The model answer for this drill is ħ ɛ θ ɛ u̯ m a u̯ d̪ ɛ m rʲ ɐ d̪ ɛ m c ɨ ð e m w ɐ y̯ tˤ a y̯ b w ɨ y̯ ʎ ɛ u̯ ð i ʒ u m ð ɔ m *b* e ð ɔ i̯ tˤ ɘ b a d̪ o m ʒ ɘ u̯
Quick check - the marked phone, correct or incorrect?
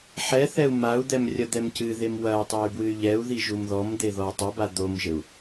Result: incorrect